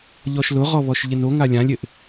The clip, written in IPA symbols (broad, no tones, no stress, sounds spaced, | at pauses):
ʎ ɔ ʃ l ʊ ʁ ɔ β ɔ ʃ ʎ ɪ n o ŋ a lʲ ã lʲ ɪ ʔ